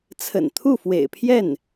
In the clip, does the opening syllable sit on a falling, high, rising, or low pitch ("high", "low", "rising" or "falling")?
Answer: low